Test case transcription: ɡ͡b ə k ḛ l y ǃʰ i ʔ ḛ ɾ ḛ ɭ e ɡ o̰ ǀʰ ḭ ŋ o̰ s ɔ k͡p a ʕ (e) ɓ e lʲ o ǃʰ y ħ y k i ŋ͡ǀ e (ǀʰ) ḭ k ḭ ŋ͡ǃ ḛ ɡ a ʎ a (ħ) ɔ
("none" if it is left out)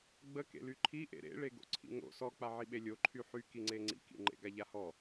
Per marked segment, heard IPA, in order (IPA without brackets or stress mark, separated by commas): i, ŋ͡ǀ, h